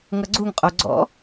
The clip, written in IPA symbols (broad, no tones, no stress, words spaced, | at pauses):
ŋʌɡ͡ǀuŋqʼo ɡ͡ǀɔ̰